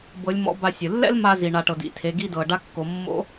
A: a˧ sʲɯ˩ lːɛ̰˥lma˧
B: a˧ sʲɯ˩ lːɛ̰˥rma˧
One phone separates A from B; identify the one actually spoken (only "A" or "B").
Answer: A